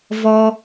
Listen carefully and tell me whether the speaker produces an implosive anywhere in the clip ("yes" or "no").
no